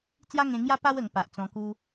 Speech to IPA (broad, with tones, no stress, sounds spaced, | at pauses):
t͡s j a˦ ŋ ẽ˧ ŋ j a˦ p a˦ w ə˧ ŋ p a˨ ʔ t͡s ɔ̃˧ k u˦